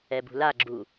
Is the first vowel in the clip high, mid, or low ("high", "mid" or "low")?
mid